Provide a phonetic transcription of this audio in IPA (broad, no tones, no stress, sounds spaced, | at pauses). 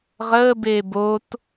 ʁ əː b eː b o t